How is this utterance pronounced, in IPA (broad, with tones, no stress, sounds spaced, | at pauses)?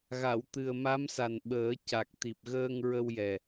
ɣ a˨˩˨ w t̪ ɨ˨˩ ə̯ m a˧˥ m s a˨˩ n ɓ əː˨˩˦ c a˨˩ k̚ t̪ i˨˩ p̚ ɣ əː˧ ŋ ɹ ə˧ w j ɛ˨˩